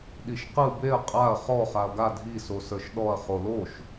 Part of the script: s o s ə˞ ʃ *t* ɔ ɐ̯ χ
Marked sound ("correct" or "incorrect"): incorrect